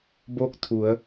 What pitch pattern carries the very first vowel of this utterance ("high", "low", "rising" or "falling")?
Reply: falling